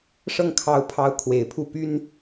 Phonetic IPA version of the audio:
ʂ ɤ˥˩ ŋ kʰ ɑ˧˥ ʊ̯ pʰ ɑ˧˥ ʊ̯ kʰ w e˨˩ ɪ̯ pʰ u˥˩ p y˥ n

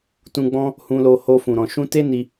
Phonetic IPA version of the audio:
t ũ˧ ɡ͡b ɔ̃˦ | h ũ˧ l o˧ h o˧ f ũ˨ ɾ ɔ̃˨ ʃ ũ˧ t e˦ n i˧

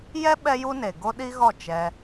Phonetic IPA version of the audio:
j ɛ˦ ɓ ɛ˦ j u˦ n e˨ ɡ o˦ ɗ i˦ ɣ ɔ˦˨ t͡ʃ ɛ˧

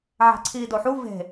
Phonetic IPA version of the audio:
ʕ æ̤ ǀʰ iː d o ħ u v e̤

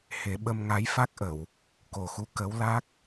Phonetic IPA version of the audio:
h e˨˩˦ ɓ ə˧ m ŋ a˧˥ j f a˦˥ k̚ ʔ ə˨˩˨ w | k o˨˩ x u˧ k ə˧˥ w l a˦˥ k̚

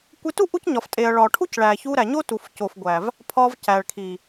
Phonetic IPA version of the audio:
kʷ e˧ t u˦ ʔ u˦ c ɲ ɒ˨ f tʼ e˨ ɐ̯ ɭ ɒ˨ ʈʰ u˦ c ɭ æ˨ ç u˧ ɾ æ˨ ɲ o˦ t u˨ f c o˨ f ɡʷ æ˨ v | pʰ ɒ˧ v c æ˨ ɭ kʰ i˨

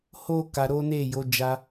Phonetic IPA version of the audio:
h o˦ k a˧ ɾ o˦ n e˦˨ j o˨˦ d͡ʒ a˧

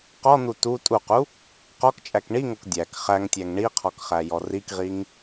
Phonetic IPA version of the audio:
q ɔ n̪ u t u tʼ u q u | q ɔ k t͡ʃʼ æ k ɳ i ŋ o k dʲ æ k χ æ ŋ tʲ æ ŋ ɳ i qʰ ɔ k χ æ j ɔ r i k ʁ i ŋ

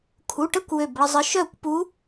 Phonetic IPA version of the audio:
kʰ u˩˧˩ ʈ ə˥˨ kʷ w ø˧˩ b ɭ ə˧ zˤ ə˧˥ ʃ œ˥˨ kʷ p u˧˥

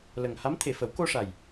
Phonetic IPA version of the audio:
l ə˨˩ ŋ h a˧˥ m t̪ʰ e˨˩ f ə˨˩˦ w k o˧ ʂ a˨˩ j

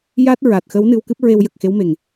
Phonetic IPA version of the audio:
j a˦˥ t̚ ɹ a˨˩ t̚ x ə˧˥ w n ɨ˧ w k ɨ˦˥ p̚ ɹ e˧ w j ə˨˩ k̚ x e˧˥ w m e˨˩ ŋ

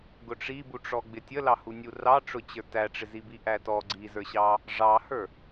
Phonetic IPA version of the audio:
ɡ ʊ ʈ͡ʂ i b u ʈ͡ʂ ɔ ɡ͡b ɪ tʲ ə l ɑ h u nʲ u r ɑ ʈ͡ʂ ʊ t͡ɕ ə˞ t æ ʈ͡ʂ ɪ z i b i ʔ æ t ɔ ɡ͡ǀ i z ə˞ ɕ ɑ | ʐ ɑ h ə˞

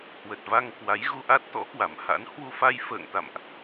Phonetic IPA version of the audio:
h w ə˨˩ t̚ v a˧ ŋ k w a˨˦ j ɣ u˧ ʔ a˦˥ t̚ t̪ ɔ̰˧˥ k w a˧˩ m h a̰˧˥ n h w u˧ f a˧ j f ə̰ː˧˨ ŋ t̪ a̰˧˨ m ʔ

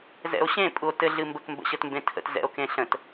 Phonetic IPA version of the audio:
z ɛ̰ o̯ ɕ ẽ pʼ u o̯ t ɘ ɮ ɨ m b ə k m b ə̰ ɕ ə t m b ẽ tʰ ə̰ t z ɛ̰ o̯ k ẽ ɬ ə̃ t

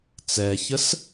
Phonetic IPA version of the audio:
t͡s ɛ ç ə s

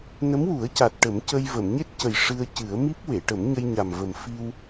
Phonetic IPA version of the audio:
n ə˧˥ m w u˨˩˦ ə̯ c a˨˩ t̚ ʈ ə˨˩˦ m c ə˧ j v ə˨˩˨ m ɲ e˦˥ t̚ c ə˨˩ j ʂ ɨ˧ ə̯ c ɨ˨˩˦ ə̯ m i˦˥ p̚ w e˨˩˨ ʈ ə˨˩˦ m ɲ ə˧ j ɲ a˨˩ m v ə˨˩ m f i˧ w

